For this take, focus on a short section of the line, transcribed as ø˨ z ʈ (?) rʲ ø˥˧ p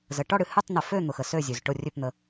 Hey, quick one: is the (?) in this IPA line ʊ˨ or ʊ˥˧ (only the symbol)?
ʊ˥˧